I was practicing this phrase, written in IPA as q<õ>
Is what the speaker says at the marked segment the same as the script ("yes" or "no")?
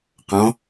no